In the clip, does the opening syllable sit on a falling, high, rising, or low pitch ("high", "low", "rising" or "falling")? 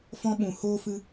high